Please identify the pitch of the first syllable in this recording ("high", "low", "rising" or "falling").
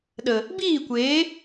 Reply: low